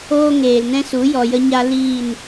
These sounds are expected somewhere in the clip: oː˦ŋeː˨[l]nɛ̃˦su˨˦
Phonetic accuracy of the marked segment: correct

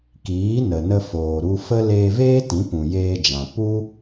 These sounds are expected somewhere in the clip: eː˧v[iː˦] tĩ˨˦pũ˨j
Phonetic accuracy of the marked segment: incorrect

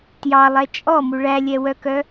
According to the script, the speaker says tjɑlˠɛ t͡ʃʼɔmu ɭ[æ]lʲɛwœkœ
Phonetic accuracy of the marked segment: correct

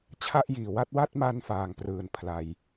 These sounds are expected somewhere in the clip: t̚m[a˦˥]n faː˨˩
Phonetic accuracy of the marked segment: incorrect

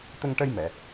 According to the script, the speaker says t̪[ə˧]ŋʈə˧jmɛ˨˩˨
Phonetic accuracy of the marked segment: correct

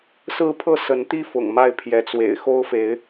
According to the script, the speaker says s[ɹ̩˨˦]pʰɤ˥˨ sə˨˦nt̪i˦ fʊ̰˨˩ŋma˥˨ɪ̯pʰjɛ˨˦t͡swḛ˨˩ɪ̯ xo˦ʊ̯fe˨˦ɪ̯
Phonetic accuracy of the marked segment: incorrect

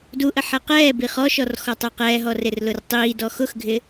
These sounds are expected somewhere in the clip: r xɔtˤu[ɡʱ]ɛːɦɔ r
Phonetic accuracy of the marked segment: incorrect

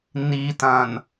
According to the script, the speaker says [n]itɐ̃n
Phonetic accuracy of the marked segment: correct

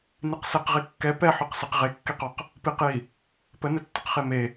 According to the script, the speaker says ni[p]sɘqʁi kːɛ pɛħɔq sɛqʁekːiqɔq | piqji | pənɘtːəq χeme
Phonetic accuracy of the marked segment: incorrect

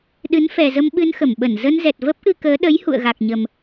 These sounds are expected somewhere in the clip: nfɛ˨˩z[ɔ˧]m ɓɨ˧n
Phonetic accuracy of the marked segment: incorrect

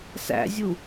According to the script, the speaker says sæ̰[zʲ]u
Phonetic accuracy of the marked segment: correct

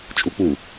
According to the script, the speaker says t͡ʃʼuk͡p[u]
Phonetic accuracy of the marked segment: correct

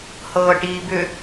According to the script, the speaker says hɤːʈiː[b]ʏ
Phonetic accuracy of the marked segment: correct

